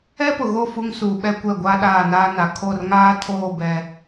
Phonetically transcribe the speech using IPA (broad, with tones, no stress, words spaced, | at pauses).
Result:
ɛ˦pʊ˨ɣo˦˨ fu˦ŋsuː˨ɓɛ˦kʷɛ˦˨ ɡʷa˦ ɗaː˦˨naː˦na˨ kʰo˦˨rŋaː˦tʰoː˦˨ bɛ˦